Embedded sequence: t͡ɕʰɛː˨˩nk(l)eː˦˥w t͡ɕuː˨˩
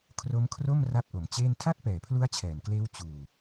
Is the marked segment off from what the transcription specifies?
no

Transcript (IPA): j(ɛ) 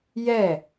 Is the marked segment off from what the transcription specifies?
no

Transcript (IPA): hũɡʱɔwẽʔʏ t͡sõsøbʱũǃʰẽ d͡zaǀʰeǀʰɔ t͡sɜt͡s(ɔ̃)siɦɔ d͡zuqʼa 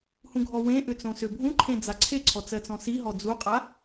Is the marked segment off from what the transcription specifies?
no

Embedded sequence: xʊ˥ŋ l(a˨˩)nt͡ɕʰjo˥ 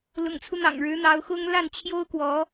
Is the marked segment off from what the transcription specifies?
yes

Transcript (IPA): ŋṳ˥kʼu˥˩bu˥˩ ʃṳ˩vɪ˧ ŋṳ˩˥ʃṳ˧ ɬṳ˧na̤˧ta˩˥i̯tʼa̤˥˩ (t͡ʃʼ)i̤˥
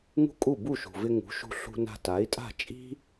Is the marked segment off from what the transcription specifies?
no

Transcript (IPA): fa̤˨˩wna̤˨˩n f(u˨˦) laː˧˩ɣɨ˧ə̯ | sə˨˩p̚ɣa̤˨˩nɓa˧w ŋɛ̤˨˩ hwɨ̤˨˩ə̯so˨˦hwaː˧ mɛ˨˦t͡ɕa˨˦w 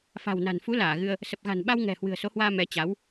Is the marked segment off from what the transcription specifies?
no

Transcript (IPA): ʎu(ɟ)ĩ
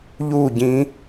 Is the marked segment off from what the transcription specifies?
no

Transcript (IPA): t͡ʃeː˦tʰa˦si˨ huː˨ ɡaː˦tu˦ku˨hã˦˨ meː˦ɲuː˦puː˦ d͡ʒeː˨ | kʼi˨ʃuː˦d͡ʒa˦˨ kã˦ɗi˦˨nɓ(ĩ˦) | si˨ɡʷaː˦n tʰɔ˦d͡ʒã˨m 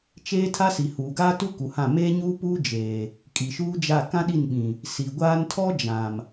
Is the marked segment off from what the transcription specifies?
yes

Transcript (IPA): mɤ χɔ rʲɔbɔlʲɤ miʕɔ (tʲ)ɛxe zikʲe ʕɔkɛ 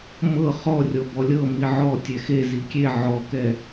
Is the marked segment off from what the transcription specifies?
no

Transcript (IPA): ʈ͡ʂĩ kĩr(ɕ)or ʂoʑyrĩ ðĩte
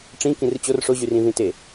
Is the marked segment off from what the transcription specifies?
yes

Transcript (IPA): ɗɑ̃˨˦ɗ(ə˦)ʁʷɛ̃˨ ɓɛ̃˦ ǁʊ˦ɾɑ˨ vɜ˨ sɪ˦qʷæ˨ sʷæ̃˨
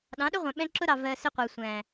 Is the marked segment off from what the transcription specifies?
yes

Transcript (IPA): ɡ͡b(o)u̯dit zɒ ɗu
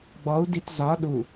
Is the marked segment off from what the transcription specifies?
yes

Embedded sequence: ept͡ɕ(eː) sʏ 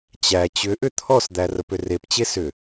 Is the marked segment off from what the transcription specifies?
yes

